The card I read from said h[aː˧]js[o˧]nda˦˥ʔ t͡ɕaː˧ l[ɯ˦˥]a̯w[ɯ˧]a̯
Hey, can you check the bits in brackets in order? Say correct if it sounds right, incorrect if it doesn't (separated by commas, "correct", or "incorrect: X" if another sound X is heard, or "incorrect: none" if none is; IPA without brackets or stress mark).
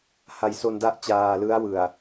incorrect: a˧, correct, correct, incorrect: ɯ˨˩